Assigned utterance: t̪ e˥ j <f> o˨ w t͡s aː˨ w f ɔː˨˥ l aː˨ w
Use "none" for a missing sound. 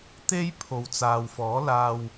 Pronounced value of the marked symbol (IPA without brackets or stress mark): pʰ